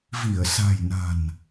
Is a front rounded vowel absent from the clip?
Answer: yes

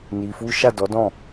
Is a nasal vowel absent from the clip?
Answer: no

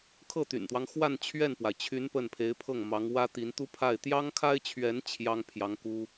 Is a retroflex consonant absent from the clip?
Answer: yes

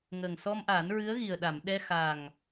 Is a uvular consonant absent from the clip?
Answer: yes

